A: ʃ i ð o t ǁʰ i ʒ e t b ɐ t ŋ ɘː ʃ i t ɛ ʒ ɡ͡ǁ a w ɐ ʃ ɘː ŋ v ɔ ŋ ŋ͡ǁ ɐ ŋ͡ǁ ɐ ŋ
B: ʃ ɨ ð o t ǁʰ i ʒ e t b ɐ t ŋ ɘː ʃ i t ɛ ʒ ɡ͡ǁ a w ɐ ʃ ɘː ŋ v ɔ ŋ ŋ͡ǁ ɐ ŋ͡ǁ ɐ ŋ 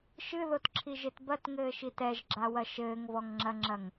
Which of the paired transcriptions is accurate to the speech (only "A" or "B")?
B